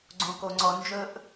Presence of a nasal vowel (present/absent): present